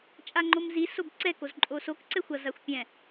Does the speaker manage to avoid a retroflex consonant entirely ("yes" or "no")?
yes